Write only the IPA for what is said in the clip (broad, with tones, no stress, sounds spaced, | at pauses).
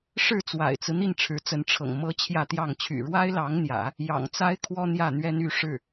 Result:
ʂ ɻ̩˥˩ t͡s w a̰˨˩ ɪ̯ t͡s ɹ̩˦ n̪ i˥˩ n ʈ͡ʂʰ ɻ̩˧˥ t͡s ə˧˥ n ʈ͡ʂʰ ɤ̰˨˩ ŋ m ɤ˥ t͡ɕʰ j ä˥˧ t̪ j ɑ˥˩ ŋ t͡ɕʰ y̰˨˩ ɻ w a˥ ɪ̯ l ɑ˧˥ ŋ n̪ j ä̰˨˩˦ | j ɑ̰˨˩ ŋ t͡s a˥ ɪ̯ kʰ w ɔ˥ n̪ j ä˥˩ n̪ ɥ ɛ˥ n y˧˥ ʂ ɻ̩˥˩